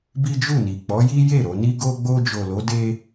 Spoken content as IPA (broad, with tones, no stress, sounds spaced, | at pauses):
b i˦ d͡ʒ u˦˨ n i˨ k͡p ɔ˨˦ j i˦ j e˦˨ ɾ o˧ n i˦ ɡ o˦ ɡ͡b o˧ d͡ʒ o˨ l o˨˦ d e˦